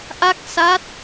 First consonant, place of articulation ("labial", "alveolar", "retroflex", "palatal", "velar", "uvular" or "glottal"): glottal